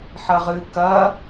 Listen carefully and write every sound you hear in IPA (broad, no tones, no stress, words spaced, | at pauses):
ħɐʁɨ kɐ